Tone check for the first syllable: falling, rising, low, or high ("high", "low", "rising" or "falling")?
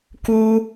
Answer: high